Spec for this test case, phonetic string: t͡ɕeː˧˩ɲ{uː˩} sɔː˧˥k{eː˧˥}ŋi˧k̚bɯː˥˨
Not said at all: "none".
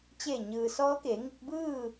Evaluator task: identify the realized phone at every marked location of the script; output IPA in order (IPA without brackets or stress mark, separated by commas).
ɯː˩, eː˩˧